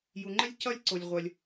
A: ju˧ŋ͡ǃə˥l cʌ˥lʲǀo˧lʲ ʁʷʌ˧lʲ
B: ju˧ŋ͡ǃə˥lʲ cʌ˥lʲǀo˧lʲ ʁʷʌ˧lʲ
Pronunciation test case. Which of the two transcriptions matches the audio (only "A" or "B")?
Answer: B